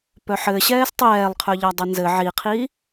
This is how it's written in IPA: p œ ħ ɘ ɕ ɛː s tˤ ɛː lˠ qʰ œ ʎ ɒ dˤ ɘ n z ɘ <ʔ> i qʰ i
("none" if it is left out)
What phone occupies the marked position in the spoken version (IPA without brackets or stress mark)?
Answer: ʕ